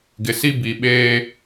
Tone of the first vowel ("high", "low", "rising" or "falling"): low